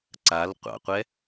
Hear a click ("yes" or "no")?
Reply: yes